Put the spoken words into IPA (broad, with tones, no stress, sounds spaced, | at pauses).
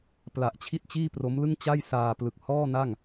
p l a˨˩ ʔ t͡ɕʰ i˥˩ t̚ t͡ɕ iː˥˩ p r o˦˥ m l ɯ˥˩ ŋ t͡ɕ a˥˩ j s aː˧ p l ɯ˨˩ k̚ h ɔː˥˩ n a˥˩ ŋ